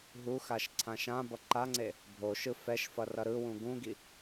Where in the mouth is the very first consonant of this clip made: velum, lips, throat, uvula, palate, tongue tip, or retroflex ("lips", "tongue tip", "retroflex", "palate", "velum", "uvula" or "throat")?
throat